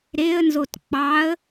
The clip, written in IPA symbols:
ɾeə̯nzot k͡pɑə̯

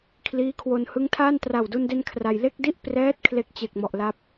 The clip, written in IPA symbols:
kʰliː˦˥kʰwo˧n hɯ˦˥ŋtʰaː˥˩n tra˨˩wdu˧nde˧n kʰra˧j le˥˩k̚di˥˩ʔ prɛː˦˥t̚ kʰle˥˩k̚t͡ɕe˨˩k̚mɔ˨˩ʔla˦˥p̚

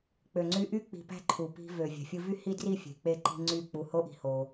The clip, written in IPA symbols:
k͡pø˨ŋ͡ǀy˧ʔy˦ k͡pi̤˧pæ̤˦ǃʰu˨ pi̤˧ vø˨ vʲæ̤˨fʲɯ˧vy˦hi˦ dri˦˨fʲe̤˨ k͡pe˦ǃi̤˦ ŋ͡ǀy˦˨ k͡pu˧ ho˦ʔi̤˧ ho˧

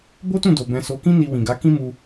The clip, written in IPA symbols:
bo˦tũ˦˨do˨ bɛ̃˨so˨kĩ˧ ni˧wĩ˨ɡa˨˦ kĩ˦mu˧

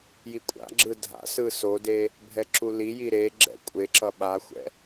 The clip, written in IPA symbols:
jikʷʼa̰ɡ͡ǁɯ dʱa̰sɯ sode | bʱɛǁuliji ɾe ɡ͡ǁɛ̰kʷʼeǁʌ ɓaxʷɛ̰

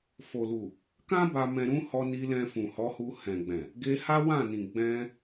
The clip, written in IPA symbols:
fo˨lu˨ | kã˦ ba˧ mɛ̃˧ɾũ˦ hɔ˧ni˧ lɛ̃˧fũ˨hɔ˨˦hu˧ hɛ̃˨ɡ͡bɛ̃˨ | ɡe˧ha˦wã˦˨nĩ˨ ɡ͡bɛ̃˧

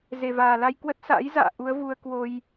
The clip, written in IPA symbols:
ze˨˩vaː˨˩la˧j kwə˦˥t̚sa̰˧˥jza̰ː˧˨ ʔu˨˦ə̯vu˧ə̯ kwo˧j

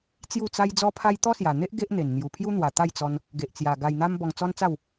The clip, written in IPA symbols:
t͡sju˥˧t͡sa˦j d͡zɔ˦pʰa˦j t̪ɔ˦sja˨˩n̪e˦ʔ ɡe˦ʔn̪e˨˩n n̪ju˨˩pʰju˦n̪wa˨˩ t̪a˥˧jt͡sɔ˧n | ɡe˨ʔt͡sja˨˩ ɡa˧jn̪a˦m bɔ˧ŋt͡sɔ˦nt͡sa˥˧w

